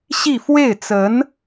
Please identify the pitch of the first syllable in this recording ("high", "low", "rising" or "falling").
falling